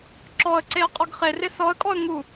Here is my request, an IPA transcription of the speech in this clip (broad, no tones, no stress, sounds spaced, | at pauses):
ǁ ɔ ə̯ ǀ e ə̯ qʼ ɔ ɡ χ e r ɪ s ɔ ə̯ kʼ ɔ ə̯ ŋ u